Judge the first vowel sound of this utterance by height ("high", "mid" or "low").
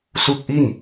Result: high